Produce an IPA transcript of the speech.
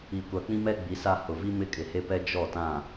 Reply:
i˨kʷa˨ k͡pĩ˦mɛ˦ ɡ͡bi˨˦sa˦ hʊ˨vi˦ mɪ˦kʼɪ˨he˦pɛ˦ d͡ʒɔ˦˨tã˦˨

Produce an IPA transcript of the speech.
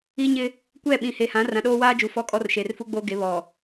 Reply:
i˦ɲɪ˦ | kʷɛ˦˨ɓĩ˨ he˨hã˨˦ rã˨ɗoː˦waː˦d͡ʒu˨ fɔ˦kʼɔ˦r ʃe˨rfu˦ɡ͡boː˦ɡe˨˦ βɔ˨

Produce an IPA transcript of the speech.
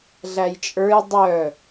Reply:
ɮæjt͡ʃʼə˞j dˤœ

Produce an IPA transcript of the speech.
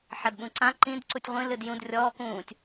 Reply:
ħɐdɓũǀã ǃĩd ǀutʲʁʷĩ lɨdjũd rʲɔː kũːtʲ

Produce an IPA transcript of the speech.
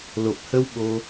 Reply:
lo˨˩p̚hə˧w ɓo˧

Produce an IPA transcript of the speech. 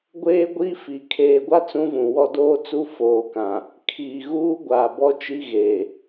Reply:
ɡʷeː˦ɡʷi˦fi˨ kʰeː˨ɡʷa˦ t͡sũ˦vũ˨wɔ˦ doː˦t͡su˦ foː˨kã˨ | kʰiː˨ɣuː˦ ɡʷaː˨bɔ˦t͡ʃi˦ɣeː˨

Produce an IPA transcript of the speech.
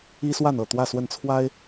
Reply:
i˦swa˥˨nɤ˥˨ t̪wä˥˨swə˥˨nt͡sʰwa˦ɪ̯

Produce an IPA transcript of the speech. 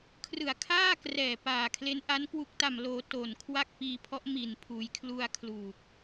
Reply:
kʰrɯ˨˩a̯kʰaː˥˩krɛː˨˩ paː˨˩kʰle˦˥nʔa˦˥n kwu˨˩k̚ta˨˩mloː˩˦ to˨˩nkʰwa˥˩k̚piː˧pʰɔ˦˥ʔ mi˨˩n pʰuː˩˦jkʰlu˧a̯ kʰluː˨˩k̚

